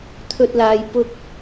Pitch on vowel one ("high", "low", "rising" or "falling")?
high